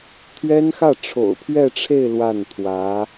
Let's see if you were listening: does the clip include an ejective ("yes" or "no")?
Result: no